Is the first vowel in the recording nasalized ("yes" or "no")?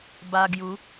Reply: no